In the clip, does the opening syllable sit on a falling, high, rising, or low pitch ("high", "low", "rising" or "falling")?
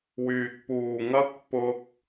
low